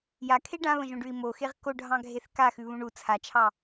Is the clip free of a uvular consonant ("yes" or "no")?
no